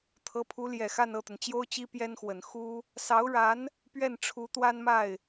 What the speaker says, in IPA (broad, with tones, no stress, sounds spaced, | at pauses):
t̪ʰ ɤ˧˥ pʰ u˧˥ l j ɛ˨˩ x a˥˧ n ɤ˥˩ t̪ ə˩ n t͡ɕ j o˥ ʊ̯ t͡ɕ i˥ p j ɛ˥ n x w ə˨˩ n x u˥ | s ɑ˧˥ ʊ̯ ɻ a˧˥ n | p ɥ ɛ˥˩ n ʈ͡ʂʰ u˧˥ t̪ w a˥ n m a˥˩ ɪ̯